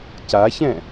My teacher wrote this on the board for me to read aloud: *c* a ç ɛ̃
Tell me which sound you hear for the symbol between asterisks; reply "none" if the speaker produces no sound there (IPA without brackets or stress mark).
c